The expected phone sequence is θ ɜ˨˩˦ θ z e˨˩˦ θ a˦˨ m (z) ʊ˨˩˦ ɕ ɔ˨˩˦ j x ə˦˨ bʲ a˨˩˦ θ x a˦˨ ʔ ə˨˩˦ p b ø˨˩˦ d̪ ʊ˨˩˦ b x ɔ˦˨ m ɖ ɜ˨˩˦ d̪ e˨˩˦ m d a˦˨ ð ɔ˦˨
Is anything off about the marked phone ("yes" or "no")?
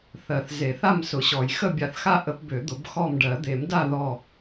yes